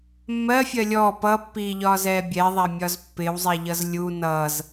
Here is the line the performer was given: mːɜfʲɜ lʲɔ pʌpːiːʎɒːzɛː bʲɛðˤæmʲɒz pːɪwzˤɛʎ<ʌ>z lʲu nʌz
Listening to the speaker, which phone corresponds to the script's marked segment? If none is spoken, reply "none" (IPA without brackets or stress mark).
ʌ